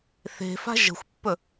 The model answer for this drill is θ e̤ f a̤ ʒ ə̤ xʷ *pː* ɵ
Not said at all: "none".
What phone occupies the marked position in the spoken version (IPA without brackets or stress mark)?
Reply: pː